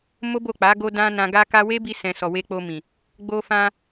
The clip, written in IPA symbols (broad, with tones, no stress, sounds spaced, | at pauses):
m o˦ b o˦˨ k͡p a˨˦ ɡ o˧ d ã˧ n ã˧ ɡ a˦ k a˦ w e˦ b i˧ s ɛ̃˨ s ɔ˨ w e˧ k͡p o˧ m ĩ˨ | ɡ͡b o˧ f ã˧